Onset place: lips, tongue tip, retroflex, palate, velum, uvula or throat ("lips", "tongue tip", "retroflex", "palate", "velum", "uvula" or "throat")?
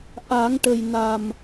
throat